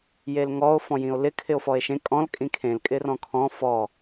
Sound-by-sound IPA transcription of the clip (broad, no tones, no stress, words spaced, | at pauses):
jelŋɔo̯ fɔ̃jĩo̯lɪ kʰɪo̯fɔe̯ʃẽ kʼɔ̃l kʼĩkʰẽl kʼɪrɔ̃kʰɔ̃ fɔ